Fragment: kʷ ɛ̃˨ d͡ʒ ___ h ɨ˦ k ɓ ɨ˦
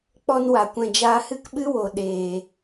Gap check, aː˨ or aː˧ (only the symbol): aː˧